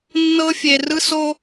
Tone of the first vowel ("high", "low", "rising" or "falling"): high